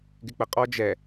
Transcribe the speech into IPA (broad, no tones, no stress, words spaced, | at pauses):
ɡɪk͡pəqʼɔ d͡ʒɛ